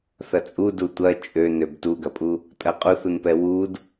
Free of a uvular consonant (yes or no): no